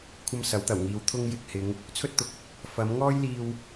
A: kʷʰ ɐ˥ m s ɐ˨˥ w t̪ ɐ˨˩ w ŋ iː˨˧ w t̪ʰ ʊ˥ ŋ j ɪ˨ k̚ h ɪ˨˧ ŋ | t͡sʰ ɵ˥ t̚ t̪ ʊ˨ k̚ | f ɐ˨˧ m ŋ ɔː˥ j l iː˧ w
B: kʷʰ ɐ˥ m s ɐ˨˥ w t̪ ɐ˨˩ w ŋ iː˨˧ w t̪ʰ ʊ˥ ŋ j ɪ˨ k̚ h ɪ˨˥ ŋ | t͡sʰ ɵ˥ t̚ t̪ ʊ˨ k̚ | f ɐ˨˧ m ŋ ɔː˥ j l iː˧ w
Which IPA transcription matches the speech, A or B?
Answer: A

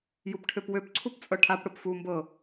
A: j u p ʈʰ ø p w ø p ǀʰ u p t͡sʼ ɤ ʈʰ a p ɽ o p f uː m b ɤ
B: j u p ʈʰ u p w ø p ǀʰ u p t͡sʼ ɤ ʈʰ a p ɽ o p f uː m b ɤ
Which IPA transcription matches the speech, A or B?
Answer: A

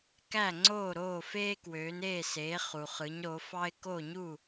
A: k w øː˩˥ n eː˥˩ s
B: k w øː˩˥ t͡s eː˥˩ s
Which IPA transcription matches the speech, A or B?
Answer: A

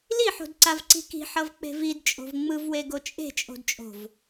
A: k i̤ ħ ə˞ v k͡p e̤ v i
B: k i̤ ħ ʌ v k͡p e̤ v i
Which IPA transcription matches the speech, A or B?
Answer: B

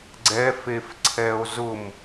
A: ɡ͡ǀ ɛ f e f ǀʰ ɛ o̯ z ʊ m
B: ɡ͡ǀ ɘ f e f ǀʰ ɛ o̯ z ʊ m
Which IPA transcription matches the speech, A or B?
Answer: A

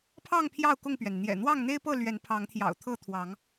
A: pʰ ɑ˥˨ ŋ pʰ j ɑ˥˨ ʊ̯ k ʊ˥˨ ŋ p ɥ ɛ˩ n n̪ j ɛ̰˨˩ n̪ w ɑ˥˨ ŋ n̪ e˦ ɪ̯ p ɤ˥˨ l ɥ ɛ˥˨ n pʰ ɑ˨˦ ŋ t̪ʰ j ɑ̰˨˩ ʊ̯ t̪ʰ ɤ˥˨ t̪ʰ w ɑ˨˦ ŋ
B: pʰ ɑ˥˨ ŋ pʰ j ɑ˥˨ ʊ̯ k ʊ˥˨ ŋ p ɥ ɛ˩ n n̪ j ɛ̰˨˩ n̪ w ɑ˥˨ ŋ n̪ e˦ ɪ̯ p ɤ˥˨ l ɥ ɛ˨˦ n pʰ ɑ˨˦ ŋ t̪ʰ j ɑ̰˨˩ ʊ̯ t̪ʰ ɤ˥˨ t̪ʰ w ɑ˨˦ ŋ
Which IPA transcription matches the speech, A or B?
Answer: B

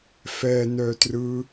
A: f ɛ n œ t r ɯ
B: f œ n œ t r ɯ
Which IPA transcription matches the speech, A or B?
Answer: A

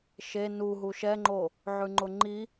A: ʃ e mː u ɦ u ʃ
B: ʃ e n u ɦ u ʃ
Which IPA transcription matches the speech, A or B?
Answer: B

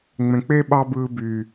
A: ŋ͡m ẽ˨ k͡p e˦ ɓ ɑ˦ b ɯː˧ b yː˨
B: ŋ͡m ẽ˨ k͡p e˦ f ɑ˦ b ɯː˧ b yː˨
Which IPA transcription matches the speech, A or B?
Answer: A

